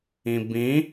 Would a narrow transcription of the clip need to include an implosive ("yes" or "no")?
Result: no